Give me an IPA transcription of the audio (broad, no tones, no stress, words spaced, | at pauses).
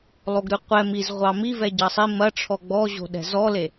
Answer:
lˠoɡɾʉqʷɛ miz ʁʷɑmivɛ ɟɑsˤi mɐʈ͡ʂʰɔ ɡ͡bɔʑo̤ɗɛ̤ zɔle